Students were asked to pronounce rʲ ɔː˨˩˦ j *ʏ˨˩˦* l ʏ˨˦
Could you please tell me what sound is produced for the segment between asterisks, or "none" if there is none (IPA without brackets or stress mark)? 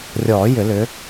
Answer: ʏ˨˩˦